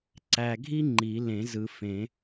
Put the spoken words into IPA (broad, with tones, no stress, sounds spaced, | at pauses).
ǀ æ˨ ɡʱ i˥ ŋ͡ǃ i˨˩˦ l ẽ˨˩˦ z ɯ˨ f ẽ˨˩˦